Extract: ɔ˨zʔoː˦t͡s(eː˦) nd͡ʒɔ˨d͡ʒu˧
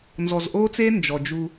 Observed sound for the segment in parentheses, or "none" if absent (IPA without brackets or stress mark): eː˦